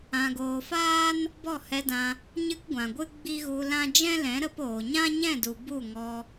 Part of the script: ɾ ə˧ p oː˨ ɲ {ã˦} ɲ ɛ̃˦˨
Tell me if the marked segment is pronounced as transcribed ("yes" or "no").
yes